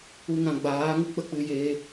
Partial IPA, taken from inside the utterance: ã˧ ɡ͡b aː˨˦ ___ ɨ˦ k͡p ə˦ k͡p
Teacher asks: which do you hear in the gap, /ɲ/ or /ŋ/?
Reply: ŋ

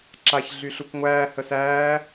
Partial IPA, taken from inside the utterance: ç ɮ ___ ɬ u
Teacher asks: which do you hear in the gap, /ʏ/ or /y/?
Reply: y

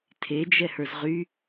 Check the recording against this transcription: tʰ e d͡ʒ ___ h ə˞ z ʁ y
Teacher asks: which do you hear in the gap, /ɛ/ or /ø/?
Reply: ɛ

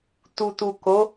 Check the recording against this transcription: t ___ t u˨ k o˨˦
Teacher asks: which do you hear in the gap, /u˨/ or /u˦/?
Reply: u˨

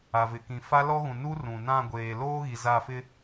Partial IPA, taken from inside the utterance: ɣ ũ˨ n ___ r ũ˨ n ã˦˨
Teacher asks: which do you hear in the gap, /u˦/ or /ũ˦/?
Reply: u˦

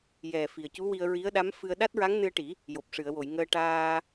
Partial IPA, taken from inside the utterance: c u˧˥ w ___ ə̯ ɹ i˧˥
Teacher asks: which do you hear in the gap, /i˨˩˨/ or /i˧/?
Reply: i˧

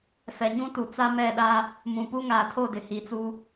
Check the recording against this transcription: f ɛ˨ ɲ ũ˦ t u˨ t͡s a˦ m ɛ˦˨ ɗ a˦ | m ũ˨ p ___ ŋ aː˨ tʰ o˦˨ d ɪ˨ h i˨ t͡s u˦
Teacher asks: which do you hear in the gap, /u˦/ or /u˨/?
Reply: u˦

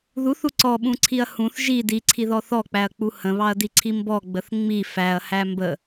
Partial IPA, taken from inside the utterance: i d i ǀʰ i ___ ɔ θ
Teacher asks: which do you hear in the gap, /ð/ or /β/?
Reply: ð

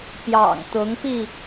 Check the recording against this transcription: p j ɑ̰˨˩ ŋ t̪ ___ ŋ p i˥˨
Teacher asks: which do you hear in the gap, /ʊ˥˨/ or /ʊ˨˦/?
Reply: ʊ˨˦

